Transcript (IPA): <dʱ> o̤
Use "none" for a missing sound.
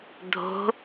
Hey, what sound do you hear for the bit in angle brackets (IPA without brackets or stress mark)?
dʱ